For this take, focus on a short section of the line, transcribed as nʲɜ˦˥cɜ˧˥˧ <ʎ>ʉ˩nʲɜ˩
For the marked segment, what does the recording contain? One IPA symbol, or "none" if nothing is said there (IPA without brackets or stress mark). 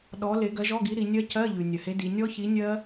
ʎ